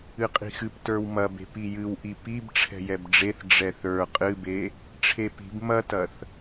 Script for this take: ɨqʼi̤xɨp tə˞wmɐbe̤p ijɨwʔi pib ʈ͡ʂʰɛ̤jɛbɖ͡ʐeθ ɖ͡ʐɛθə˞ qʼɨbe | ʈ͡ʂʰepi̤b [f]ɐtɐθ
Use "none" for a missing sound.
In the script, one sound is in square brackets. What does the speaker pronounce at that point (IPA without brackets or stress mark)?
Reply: m